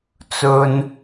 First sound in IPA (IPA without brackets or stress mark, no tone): t͡s